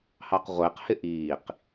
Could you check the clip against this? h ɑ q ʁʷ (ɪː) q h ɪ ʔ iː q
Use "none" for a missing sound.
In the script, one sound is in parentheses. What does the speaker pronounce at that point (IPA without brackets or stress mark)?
ɪː